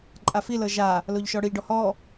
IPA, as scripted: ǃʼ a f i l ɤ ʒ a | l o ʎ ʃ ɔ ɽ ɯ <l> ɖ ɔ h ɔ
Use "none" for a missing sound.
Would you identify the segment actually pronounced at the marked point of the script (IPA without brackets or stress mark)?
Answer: ʎ